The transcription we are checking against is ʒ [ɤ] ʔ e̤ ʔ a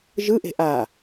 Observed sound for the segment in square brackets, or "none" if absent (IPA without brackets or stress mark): ɯ